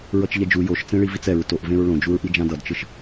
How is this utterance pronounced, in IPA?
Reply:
ɹ ʌ t͡ʃ ʎ ɛ d͡ʒ u j o ʃ t͡s ẽ ɭ i v i t͡s ɛ ɹ t o ʔ v ẽ ɹ ɭ õ d͡ʒ u ɹ ʔ i d͡ʒ ã d ʌ d t͡ʃ ɯ ʃ

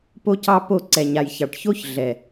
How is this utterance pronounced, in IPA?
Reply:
p o˦ c ɑ˦ p o˦˨ ǀ ɛ˨ ɲ a˨ j ç ɑ˨ ʈ ç o˦ ç ɮ ɛ˨

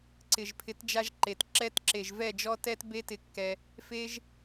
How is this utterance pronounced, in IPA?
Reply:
ǀ ɪ˨ ʒ pʰ ɪ˨˦ t d͡ʒ a˧ ʒ ǃ e˨ t ǁ ɛ˧ t ǁ e˨ ʒ v ɛ˦˨ d͡ʒ ɔ˦ t ɛ˦ t b e˦ t ɪ˧ kː ɛ˧ | f e˦ ʒ

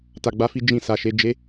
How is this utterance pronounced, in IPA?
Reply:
t a˨ ɡ͡b a˧ f i˦ d͡ʒ ĩ˧ s a˨ ʃ e˧ d͡ʒ e˦

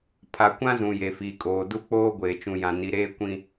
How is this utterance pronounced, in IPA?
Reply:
pʰ a˨ kʷ ã˦ z ũ˨ j e˨ f i˨ kʼ oː˨ d u˦ k͡p oː˦ ɡʷ eː˨ t͡ʃ ũ˨ j ã˨ n i˨ ɾ eː˦ kʷ ĩ˦

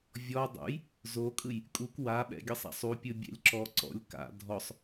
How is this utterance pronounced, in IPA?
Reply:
vʲ ɔ dˤ ṵ j | z o kʼ ɯ j | kʼ u k w a ɓ ɛ̰ ɡʲ ɯ sˤ a̰ sˤ u pʲ ɯ bʲ ɛ̰ lʲ ǁ ɔ ǀ ɔ̰ lʲ k a̰ dʱ ɔ sˤ

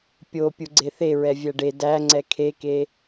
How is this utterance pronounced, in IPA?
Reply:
pʲ o pʲ u ɡ͡ǀ e θ e ɹ ɛ vʲ æ ɖ e d æ ŋ͡ǀ ɛ kʰ e k e

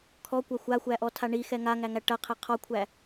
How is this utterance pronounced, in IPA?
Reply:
kʰ ɔ kʷ ɐ xʷ a xʷ æ ʔ ɔ tʰ a ɳ i x ɛ ŋ a ŋ æ ŋ æ ʈ ɐ qʰ ɛ qʰ ɔ kʷʰ æ

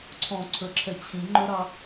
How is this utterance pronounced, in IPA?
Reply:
ǀʰ ɔ̃ ǀʰ ə˞ ǁʰ ɛ t͡ɕʰ ĩ ŋ͡ǃ ɵ ɾ ɑ

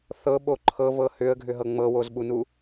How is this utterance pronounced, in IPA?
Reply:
θ ɤ ɓ o ǃʰ ɤ v ɤ h ʏ ə̯ ɡʱ ʏ ɦ ɤ ŋ͡m ɤ w o z ɓ u n u

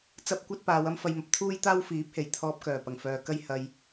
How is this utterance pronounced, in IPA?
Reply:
t͡s ɐ˧ p̚ kʷ ɐ˧ t̚ p aː˨˧ w ɐ˥ m f ɐ˧ j m ɐ˨ p̚ t̪ʰ uː˥ j t̪ aː˥ w f iː˨˥ p̚ h e˨˩ j t̪ʰ ɔː˧ p̚ k œː˨˩ p ɐ˨˩ ŋ f œː˨ k ɐ˥ j h ɐ˧ j

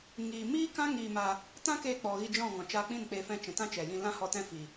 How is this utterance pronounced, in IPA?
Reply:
ŋ iː˨ m iː˦ k ã˦ ŋ iː˧ m aː˧ | t ã˦ k eː˧ k͡p ɔ˨ ɣ i˧ d͡ʒ ɔ̃˦˨ ŋ ɔ̃˨ t͡ʃ aː˧ k͡p ĩ˦˨ n k͡p eː˧ f ɛ̃˧ t͡ʃ ɛ̃˨ t ã˦ t͡ʃ ɛ˨ j ĩ˧ l ã˦ h ɔ˧ t ɛ̃˦ f iː˨

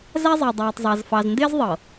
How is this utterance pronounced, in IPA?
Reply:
z æ˦ zˤ ɪː˨ dˤ aː˨ tˤ zˤ æ˨ z f ɑ˨ z n d ɪː˦ z ðˤ ɤ˨

